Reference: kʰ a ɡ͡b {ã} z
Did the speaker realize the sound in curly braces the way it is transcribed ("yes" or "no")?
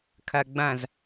yes